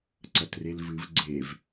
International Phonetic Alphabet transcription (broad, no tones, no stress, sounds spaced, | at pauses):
ǀ ɐ t r e l v ɨ v ɡ͡ǀ e v